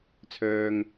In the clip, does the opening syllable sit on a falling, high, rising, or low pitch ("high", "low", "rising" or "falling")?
low